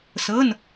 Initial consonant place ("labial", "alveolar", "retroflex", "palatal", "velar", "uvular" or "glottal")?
alveolar